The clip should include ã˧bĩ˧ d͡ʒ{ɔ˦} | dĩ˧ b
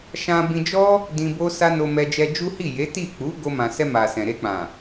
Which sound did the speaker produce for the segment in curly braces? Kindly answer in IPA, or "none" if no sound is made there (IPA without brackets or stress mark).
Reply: ɔ˦